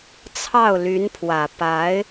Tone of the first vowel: falling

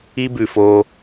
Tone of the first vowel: high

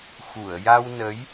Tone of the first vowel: low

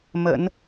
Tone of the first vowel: low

